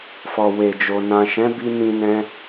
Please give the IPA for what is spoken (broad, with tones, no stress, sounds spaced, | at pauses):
f ɔ˨ w e˨ d͡ʒ o˨ n ã˨ ʃ ɛ̃˨˦ b i˧ n ĩ˧ n ɛ̃˧